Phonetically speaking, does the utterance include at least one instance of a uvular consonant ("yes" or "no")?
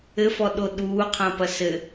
yes